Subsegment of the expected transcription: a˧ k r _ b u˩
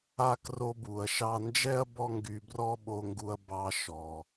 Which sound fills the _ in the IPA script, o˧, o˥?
o˧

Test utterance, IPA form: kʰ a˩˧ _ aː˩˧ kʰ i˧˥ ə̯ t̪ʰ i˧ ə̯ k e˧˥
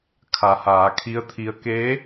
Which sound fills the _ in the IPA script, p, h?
h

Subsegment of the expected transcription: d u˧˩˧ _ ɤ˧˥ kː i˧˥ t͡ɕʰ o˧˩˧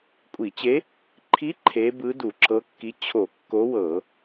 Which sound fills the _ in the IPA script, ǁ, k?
ǁ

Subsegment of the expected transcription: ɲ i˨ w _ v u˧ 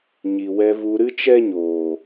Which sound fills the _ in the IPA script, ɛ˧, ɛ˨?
ɛ˧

